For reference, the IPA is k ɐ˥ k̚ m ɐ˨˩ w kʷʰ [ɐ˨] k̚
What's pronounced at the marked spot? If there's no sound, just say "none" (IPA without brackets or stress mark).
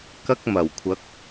ɐ˨˥